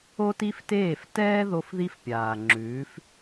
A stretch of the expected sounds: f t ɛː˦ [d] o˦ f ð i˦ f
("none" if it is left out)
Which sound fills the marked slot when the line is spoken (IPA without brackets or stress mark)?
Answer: ð